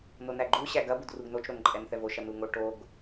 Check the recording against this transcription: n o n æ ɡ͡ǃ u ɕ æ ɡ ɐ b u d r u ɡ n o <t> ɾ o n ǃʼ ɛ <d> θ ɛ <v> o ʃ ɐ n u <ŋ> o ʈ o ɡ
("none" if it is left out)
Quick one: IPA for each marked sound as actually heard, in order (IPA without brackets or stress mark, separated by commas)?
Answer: t͡ʃ, n, v, ŋ